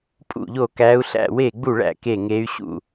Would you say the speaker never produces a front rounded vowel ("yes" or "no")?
no